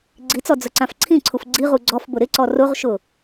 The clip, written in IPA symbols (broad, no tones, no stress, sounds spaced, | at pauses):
ɡ͡ǀ i t͡s ɔ d͡z ʊ ǀ ã f ǀʰ ĩ ǀʰ u f ɡ͡ǀ i ʁ u ɡ͡ǀ ɔ f b ʊ ɾ ɪ ǀ ɔ r ʊ ʁ ʃ ʊ